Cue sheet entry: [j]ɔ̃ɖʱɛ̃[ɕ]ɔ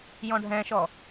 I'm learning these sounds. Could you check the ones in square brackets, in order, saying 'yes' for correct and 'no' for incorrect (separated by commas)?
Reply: yes, no